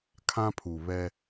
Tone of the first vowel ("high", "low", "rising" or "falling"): high